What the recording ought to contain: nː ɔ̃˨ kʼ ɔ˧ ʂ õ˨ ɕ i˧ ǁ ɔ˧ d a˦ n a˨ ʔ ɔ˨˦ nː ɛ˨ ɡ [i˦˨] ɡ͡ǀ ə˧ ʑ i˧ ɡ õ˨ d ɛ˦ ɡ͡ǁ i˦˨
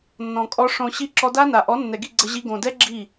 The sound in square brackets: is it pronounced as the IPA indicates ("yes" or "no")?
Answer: yes